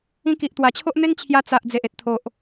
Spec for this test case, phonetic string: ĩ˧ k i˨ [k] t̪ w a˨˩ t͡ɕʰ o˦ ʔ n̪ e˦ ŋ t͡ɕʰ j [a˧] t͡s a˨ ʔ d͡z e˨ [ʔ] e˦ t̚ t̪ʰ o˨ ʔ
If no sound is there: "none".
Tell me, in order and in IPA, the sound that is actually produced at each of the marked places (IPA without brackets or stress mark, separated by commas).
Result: ʔ, a˧, ʔ